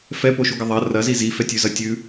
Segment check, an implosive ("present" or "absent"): absent